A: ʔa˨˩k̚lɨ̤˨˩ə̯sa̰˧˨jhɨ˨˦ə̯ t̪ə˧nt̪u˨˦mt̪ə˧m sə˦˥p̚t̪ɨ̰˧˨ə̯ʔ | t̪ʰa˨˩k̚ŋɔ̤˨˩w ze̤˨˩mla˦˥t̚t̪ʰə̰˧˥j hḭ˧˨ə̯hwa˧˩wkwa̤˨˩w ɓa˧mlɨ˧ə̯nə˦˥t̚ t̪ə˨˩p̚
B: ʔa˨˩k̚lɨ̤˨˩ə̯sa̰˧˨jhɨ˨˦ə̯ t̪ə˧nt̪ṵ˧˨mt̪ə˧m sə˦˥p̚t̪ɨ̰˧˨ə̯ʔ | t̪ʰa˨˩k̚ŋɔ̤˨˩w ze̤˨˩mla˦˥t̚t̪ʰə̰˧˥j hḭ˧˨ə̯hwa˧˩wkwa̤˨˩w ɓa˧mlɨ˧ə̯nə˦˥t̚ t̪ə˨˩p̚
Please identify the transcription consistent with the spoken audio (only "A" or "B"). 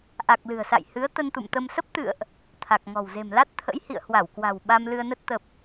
B